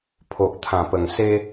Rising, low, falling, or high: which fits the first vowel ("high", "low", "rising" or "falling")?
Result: low